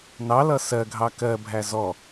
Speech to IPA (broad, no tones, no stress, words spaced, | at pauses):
nɑlʌ sɜɡʱɑ kɜbʱæ zɔ